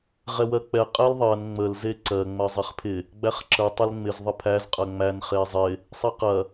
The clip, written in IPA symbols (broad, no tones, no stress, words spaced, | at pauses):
ʁɛwɜk͡pɛ qʼɛlðˤɜn ŋ͡məl zeǀɜ ŋ͡mɜzˤɛχpʰɪ | ɡ͡bæχǁə tˤɐlŋ͡mɪz ðˤəpʰæz qʼɜŋ͡mæn χezˤɪ | sˤɛqɐ